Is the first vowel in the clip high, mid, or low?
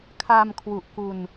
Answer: low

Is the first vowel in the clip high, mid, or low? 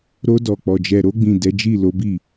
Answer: mid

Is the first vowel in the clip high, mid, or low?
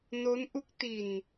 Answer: mid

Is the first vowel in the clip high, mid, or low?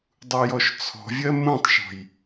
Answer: high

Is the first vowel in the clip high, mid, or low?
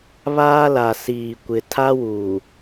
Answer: low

